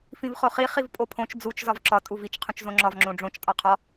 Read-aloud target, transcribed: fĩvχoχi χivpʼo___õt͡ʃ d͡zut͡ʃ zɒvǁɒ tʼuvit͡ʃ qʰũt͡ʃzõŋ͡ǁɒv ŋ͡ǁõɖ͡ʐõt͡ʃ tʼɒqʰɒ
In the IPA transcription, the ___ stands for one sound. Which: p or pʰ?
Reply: pʰ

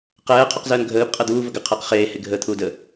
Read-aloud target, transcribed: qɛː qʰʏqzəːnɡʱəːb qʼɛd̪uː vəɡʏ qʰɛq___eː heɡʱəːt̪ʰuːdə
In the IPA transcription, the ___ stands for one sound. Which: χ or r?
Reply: χ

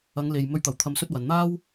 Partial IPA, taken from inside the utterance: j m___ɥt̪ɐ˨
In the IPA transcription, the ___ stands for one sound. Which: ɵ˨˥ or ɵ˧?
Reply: ɵ˧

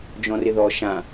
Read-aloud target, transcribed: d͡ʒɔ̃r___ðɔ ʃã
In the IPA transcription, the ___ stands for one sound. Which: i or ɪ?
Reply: ɪ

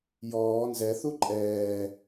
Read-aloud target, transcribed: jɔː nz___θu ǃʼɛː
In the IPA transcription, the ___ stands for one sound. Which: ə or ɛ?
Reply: ɛ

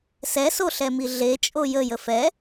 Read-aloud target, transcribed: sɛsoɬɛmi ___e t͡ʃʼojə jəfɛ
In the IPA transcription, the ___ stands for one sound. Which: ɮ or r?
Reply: ɮ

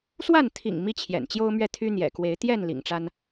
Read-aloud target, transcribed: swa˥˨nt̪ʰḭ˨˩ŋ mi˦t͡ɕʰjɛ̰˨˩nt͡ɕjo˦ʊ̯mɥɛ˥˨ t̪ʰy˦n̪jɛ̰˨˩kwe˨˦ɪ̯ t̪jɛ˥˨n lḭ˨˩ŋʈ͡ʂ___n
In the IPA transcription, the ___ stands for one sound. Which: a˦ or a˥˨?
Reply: a˦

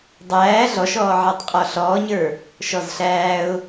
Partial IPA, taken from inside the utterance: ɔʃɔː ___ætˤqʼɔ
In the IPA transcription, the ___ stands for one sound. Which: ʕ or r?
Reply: ʕ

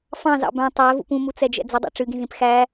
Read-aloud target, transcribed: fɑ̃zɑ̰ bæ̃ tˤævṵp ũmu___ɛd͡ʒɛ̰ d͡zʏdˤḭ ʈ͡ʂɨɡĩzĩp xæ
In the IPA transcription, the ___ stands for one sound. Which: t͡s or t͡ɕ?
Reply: t͡s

